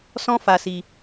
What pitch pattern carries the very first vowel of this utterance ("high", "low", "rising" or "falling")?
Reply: high